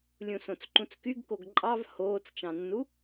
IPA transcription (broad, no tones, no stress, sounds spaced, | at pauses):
lʲ ũ s õ t͡s ǃ ũ t͡s k y ɡ k o ɡ ǃʼ ɑ v h oː t͡s t͡ʃ ɑ̃ nː u